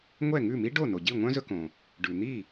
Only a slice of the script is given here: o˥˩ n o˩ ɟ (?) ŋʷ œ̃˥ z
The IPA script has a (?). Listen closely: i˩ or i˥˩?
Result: i˥˩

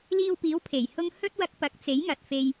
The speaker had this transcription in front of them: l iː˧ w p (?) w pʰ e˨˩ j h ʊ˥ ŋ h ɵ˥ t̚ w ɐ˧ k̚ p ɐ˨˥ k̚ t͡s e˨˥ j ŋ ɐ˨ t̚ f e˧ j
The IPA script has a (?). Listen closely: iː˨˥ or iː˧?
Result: iː˨˥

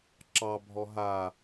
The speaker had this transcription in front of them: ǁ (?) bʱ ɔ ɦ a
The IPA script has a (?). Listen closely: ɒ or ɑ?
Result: ɑ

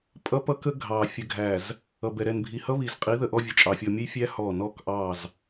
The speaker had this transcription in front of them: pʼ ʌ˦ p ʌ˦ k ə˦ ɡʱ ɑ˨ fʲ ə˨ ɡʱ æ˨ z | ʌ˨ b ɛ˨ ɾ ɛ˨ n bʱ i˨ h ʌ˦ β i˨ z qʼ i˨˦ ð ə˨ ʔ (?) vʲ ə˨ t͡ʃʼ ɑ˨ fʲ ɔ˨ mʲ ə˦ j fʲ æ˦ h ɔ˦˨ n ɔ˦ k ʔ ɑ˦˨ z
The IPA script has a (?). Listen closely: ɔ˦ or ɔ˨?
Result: ɔ˦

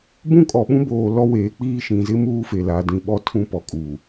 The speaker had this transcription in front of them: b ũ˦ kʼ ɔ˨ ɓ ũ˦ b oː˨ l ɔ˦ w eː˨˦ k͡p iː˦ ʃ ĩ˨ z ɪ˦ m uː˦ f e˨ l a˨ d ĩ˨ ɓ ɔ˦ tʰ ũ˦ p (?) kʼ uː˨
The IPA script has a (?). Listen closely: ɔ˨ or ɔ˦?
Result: ɔ˨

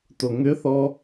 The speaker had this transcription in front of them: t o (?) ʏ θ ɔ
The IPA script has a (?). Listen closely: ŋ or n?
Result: ŋ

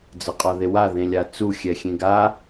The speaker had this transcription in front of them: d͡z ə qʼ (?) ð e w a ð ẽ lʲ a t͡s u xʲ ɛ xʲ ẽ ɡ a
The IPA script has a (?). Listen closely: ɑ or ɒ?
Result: ɒ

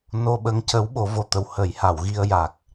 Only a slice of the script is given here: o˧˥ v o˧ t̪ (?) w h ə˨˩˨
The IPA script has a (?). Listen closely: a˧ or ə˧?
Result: ə˧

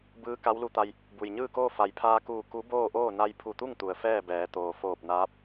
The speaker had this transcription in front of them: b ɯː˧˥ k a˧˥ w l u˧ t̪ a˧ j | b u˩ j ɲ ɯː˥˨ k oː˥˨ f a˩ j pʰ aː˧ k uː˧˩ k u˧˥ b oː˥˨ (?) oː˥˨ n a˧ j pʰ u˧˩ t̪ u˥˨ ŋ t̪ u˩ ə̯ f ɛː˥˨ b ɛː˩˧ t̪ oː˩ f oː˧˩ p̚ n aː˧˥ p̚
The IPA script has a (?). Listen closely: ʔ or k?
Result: ʔ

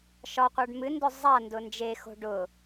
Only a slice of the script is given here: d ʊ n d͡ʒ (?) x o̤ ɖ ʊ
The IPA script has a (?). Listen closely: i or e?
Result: e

